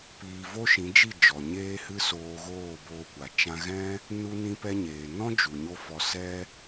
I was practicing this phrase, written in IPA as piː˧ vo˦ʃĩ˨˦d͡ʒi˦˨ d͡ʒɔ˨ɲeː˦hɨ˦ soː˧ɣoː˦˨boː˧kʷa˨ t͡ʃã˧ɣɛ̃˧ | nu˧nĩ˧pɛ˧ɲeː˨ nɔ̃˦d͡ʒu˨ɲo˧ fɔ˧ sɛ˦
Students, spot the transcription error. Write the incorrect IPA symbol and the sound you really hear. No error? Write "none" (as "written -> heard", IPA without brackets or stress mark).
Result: ɛ̃˧ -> ɛ̃˦